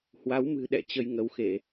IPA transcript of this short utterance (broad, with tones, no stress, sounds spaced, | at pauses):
h w a˨˦ w m ɨ̤˨˩ ɗ ɛ̰˧˨ t͡ɕ ə˧ j ŋ ə˨˦ w x e˧˩˨